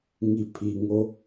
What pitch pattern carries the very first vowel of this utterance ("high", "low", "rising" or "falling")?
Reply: low